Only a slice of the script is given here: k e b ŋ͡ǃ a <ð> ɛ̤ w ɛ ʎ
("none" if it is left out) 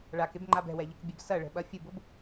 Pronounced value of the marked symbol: b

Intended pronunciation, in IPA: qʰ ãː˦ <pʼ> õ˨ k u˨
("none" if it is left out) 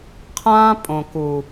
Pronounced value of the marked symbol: pʼ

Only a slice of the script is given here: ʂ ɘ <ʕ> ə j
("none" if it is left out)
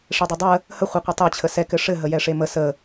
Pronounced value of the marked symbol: ɦ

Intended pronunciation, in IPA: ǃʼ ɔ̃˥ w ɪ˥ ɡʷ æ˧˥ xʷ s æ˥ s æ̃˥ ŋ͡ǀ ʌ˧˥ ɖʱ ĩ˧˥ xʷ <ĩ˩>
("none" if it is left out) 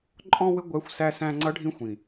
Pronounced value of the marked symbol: ĩ˩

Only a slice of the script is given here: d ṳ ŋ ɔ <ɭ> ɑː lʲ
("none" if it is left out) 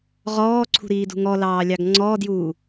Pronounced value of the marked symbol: l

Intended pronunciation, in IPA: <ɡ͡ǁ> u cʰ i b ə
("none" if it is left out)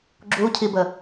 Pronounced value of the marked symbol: ɡ͡ǁ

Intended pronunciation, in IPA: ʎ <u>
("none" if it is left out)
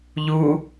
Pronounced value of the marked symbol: u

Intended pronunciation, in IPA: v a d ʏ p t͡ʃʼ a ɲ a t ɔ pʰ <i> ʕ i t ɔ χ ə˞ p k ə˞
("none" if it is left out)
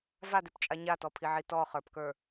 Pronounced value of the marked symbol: i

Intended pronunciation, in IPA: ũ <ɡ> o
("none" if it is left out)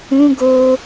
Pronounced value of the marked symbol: ɡ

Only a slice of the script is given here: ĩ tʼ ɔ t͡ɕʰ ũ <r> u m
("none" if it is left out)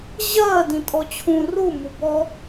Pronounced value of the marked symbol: r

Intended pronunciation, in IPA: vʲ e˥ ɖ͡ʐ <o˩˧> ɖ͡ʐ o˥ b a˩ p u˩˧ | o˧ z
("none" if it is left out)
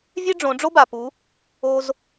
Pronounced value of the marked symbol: õ˩˧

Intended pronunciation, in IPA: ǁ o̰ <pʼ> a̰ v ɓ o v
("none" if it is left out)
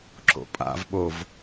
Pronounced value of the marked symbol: pʼ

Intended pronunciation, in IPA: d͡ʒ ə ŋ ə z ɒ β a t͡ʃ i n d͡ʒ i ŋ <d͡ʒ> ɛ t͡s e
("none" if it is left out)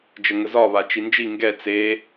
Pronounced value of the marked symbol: ɡ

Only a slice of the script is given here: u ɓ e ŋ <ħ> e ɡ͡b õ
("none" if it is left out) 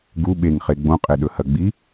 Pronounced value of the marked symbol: χ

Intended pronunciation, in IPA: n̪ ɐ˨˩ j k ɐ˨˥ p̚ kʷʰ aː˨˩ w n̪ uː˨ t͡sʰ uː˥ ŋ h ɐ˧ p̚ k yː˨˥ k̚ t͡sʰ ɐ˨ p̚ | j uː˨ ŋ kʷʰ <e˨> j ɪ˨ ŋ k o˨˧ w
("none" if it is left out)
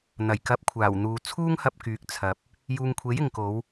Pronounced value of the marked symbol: e˨˥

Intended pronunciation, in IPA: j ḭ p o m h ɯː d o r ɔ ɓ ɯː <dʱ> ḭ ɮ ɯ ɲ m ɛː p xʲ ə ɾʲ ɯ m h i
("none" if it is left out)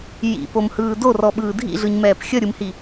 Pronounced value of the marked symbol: dʱ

